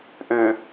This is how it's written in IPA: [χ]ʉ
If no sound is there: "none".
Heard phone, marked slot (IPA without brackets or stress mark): ʔ